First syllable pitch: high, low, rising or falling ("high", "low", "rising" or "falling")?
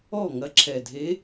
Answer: falling